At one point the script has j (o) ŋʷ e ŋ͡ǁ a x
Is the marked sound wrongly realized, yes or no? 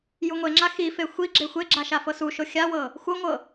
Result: yes